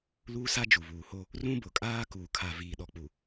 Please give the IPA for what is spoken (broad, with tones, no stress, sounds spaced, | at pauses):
l uː˦ s a˦ d͡ʒ u˨ β uː˨ h o˦ | r ũ˦ b ʊ˨ kʼ aː˦ k uː˨ kʰ a˨ v iː˨ ɗ ɔ˨ k͡p u˨